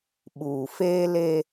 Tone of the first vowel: low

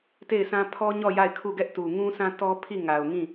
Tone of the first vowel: falling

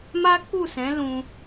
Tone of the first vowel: high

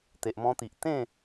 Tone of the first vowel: low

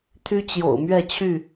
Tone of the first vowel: high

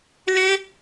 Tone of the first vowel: high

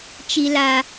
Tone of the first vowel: high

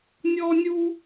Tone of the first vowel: high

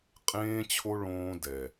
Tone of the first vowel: high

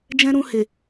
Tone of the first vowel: high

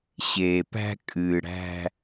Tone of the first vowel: low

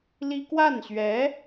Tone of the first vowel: high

